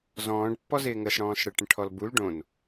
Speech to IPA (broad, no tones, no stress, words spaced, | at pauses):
zɔ̃ːɖpːɔzɪː ŋəːsɽɔ̃ːsɽə ʈə̃ʈʰɔlbul ɖõn